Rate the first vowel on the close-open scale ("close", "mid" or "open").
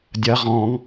open